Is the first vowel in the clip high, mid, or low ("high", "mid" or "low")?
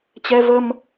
mid